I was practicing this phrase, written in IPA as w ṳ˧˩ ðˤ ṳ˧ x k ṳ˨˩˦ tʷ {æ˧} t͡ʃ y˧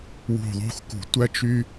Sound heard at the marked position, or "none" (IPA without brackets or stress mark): æ˧